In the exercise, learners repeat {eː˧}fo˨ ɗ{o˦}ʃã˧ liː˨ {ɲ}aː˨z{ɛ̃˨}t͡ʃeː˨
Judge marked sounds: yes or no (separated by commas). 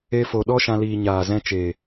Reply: no, no, yes, no